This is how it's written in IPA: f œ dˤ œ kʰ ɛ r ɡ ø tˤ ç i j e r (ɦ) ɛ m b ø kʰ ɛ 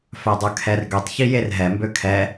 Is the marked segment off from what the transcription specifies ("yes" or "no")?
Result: no